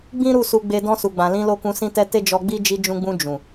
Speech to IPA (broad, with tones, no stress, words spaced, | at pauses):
ɡ͡bĩ˦ɾu˦˨su˧ɡ͡be˧ dɔ̃˧su˨ɡ͡bã˨ lĩ˧lo˧kũ˧ sĩ˧tɛ˧ te˦d͡ʒɔ˧ɡ͡bi˦ d͡ʒi˧d͡ʒũ˧ɡ͡bũ˧ d͡ʒũ˨